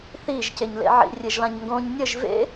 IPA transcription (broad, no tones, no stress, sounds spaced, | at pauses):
θ i ʒ c e ɲ l ḛ ʕ ḭ rʲ e ʒ l ã ɲ ŋ ɡ õ ɲ nʲ ɘ ʒ v ḛ